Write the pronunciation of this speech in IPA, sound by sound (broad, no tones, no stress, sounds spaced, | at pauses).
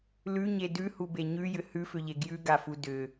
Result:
l ʉ ɲ e d ʉ h u b e ɲ ʉ j ʏ h ʉ f ʏ ʎ e ɡ j ʉ ɡ a f u d ʏ